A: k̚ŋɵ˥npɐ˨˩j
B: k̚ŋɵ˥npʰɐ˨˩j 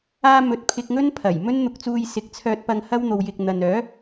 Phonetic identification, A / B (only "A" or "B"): B